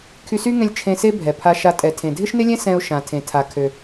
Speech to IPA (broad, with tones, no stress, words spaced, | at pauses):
kʰy˧sy˥ŋɛ̃˧lʲ t͡ʃʰẽ˧ se˥ bʱɛ˩pʰa˧ʃa˧ tʼɛ˩ tʰẽ˩dʱɪ˥ʃnɪ˥lʲɛ̃˥ sɛ̃˧ʊ̯ʃã˩ tʰẽ˩tʰa˩kʰø˩